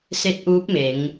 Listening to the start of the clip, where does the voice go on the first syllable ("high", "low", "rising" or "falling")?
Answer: rising